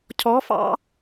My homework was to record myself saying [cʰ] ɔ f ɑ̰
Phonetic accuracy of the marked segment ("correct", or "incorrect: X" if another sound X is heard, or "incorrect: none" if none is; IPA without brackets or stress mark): correct